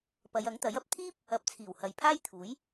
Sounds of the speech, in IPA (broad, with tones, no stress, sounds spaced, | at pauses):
p ɐ˨˧ j ɐ˨˥ ŋ t̪ ɐ˨˥ j ɐ˨ p̚ t̪ʰ iː˥ p̚ | ɐ˨ p̚ t͡sʰ iː˨˩ w h ɐ˨˧ j pʰ aː˥ j t̪ʰ uː˨˥ j